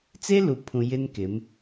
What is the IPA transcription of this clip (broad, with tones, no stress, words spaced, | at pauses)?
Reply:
t͡se˦lu˨pʰũ˨ jɪ˦nkɪ˨˦m